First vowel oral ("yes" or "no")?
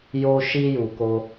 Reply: yes